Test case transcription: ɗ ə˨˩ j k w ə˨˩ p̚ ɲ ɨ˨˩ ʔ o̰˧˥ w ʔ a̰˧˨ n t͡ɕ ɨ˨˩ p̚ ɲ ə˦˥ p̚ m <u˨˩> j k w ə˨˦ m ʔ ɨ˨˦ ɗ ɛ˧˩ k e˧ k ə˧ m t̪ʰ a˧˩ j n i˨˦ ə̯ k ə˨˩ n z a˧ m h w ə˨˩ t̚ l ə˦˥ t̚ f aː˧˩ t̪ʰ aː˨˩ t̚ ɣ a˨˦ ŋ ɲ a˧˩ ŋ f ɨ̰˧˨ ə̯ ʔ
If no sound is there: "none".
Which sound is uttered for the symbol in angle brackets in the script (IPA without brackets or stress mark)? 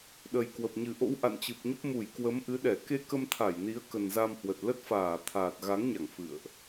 u˧˩